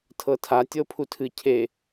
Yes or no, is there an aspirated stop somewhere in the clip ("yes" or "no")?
yes